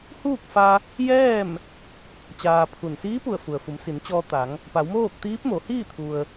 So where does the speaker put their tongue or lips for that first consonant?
throat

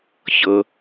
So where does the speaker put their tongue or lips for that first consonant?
palate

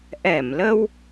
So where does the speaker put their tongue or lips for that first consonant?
throat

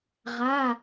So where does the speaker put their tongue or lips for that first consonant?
uvula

